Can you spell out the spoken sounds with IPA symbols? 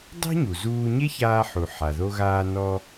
dˤ e̤˥ ɲ u˩ z uː˧ ɲ e˥ ç aː˧ ħ u˩ ħ a˩ ð o˧ ɣ aː˧ n ɔ˧

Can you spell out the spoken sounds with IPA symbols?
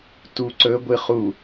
t u ǀ ɵ ɡʷ ɨ χ u

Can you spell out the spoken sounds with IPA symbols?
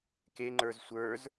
k e ŋ͡ǃ ə˞ z sʷ ə˞ z

